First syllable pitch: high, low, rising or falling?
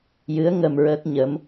rising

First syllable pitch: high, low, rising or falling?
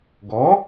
rising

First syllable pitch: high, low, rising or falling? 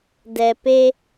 low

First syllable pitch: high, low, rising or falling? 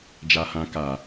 low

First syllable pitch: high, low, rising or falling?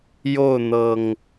falling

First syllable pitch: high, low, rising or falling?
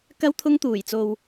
high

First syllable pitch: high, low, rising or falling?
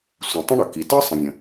low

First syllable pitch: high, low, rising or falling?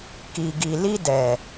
low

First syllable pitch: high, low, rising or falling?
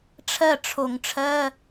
falling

